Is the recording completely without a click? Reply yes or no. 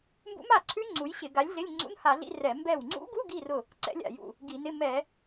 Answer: no